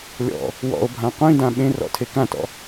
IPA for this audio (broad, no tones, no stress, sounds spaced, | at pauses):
lʲ ɔ̰ | w ɔ̰ o̯ bʱ ã qʷ ĩ d ã ɓ ẽ r ɔ̰ tʰ e k ã t ɔ̰